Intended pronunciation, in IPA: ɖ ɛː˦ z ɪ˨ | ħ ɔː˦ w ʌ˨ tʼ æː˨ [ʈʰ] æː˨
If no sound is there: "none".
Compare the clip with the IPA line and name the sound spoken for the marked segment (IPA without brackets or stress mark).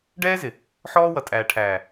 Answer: ʈʰ